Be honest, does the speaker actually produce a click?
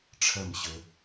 no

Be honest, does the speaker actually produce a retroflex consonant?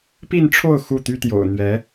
yes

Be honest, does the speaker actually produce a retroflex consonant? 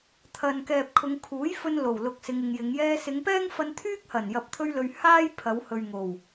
no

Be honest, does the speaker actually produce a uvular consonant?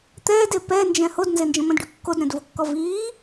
no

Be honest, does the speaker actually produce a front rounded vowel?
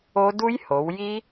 no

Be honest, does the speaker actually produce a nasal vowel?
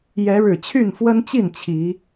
no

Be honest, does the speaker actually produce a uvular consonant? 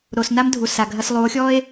no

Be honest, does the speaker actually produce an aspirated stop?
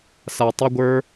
no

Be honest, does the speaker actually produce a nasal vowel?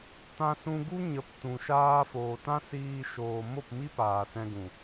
yes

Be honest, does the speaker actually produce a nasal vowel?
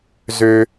no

